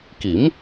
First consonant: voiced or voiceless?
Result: voiceless